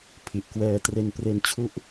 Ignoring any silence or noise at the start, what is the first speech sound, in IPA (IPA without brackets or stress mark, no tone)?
pʰ